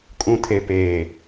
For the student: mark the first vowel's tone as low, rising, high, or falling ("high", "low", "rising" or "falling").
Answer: low